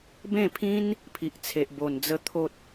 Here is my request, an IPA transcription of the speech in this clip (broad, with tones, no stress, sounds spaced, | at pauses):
b ẽ˥˧ pʰ ĩ˦ n | pʰ i˨ ʔ t͡sʰ e˨ ʔ b o˨˩ n d͡z ə˧ t̪ʰ o˨ t̚